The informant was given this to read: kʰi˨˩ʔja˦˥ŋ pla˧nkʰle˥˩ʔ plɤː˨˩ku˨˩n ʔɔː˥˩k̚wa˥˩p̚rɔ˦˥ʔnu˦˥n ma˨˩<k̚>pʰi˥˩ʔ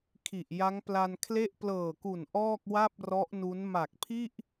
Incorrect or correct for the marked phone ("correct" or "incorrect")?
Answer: correct